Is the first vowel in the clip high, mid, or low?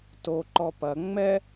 mid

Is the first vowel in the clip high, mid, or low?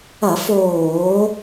low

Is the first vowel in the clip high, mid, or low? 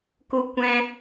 high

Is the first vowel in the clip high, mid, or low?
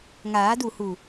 low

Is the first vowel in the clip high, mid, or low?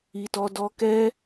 high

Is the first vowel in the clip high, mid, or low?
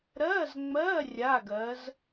mid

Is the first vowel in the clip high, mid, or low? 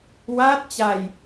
low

